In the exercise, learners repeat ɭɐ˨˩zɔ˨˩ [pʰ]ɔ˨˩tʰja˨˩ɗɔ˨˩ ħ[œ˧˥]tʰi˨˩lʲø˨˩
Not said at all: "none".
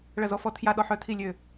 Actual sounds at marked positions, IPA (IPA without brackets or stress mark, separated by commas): f, œ˨˩